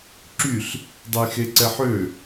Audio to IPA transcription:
ǁ y ɬ | dˤ ɛ j x e ǀ ɛ ħ ø

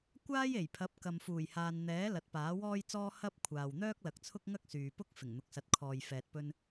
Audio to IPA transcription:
kʷ aː˥ j e˨˩ j pʰ ɐ˨˥ p̚ k ɐ˨ m f uː˨˩ j h aː˨ n n̪ ɛː˨˥ l ɐ˨˥ t̚ p aː˨˥ w ɔː˥ j t͡s ɔː˥ h ɐ˥ p̚ kʷʰ aː˨ w n̪ œː˥ k̚ l ɐ˨ k̚ t͡sʰ ʊ˥ k̚ ŋ ɐ˥ k̚ s yː˨ p ʊ˥ k̚ f ɪ˨˩ ŋ n̪ ʊ˨ k̚ s ɐ˨ t̚ kʰ ɔː˨ j f ɛː˨ t̚ p ɵ˧ n

